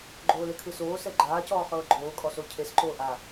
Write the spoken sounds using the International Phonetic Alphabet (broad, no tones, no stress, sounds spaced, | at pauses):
ɡ͡ǃ oː l e kʰ ɯ s oː s ɛ ɡ͡ǃ aː c ɔː χ ɤː ɡ͡ǃ oː kʼ ɔ s o cʰ e s ǃ oː ʔ a